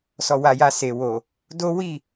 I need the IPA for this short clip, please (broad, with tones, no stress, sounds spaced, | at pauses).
s ɔ˨ w a˨ j a˨ s e˨ w o˨ | d o˦ w i˦˨